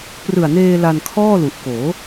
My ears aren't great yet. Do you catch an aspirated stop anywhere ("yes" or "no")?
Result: yes